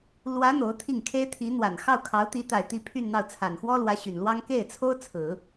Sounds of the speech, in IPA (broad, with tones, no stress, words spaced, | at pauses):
lwä˧˥ n̪o˧˥ʊ̯t̪ʰi˥˩ŋkʰe˥ɪ̯ t̪ʰi˧˥n̪wa˨˩n xɑ˥˩ʊ̯kʰɑ˧˥ʊ̯t̪i˧˥ t̪a˨˩ɪ̯ t̪i˥˧pʰy˥˧nn̪ɑ˥˩ʊ̯ t͡sʰa˨˩nxwɔ˥lwä˧˥ ɕy˨˩nlwɑ˥ŋ ke˥˩ɪ̯t͡sʰo˥ʊ̯ t͡sʰɹ̩˨˩˦